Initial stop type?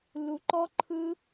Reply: click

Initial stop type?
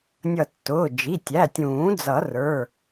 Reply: plain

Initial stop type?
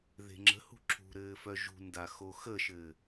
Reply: click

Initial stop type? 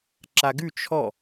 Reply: click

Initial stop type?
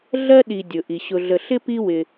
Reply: implosive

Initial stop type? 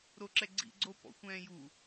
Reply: click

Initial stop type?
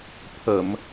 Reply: aspirated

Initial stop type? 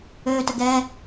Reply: plain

